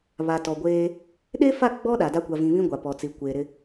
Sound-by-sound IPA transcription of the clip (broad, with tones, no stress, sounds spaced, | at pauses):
β a˨ t ɔ˨ ɡʷ eː˦ | ɗ e˦ f a˦˨ ɡ͡b ɔ˦ ɗ a˨ d a˦ kʷ a˨ v ĩ˨ β ĩ˦ ɡʷ a˨ p ɔ˨ t͡s i˨ kʷ eː˨ ɾ ɪ˦